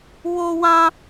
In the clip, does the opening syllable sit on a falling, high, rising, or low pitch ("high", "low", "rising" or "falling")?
high